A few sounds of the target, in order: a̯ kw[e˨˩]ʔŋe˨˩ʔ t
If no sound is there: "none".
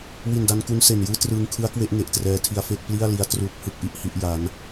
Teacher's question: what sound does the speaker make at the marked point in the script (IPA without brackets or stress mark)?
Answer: e˦˥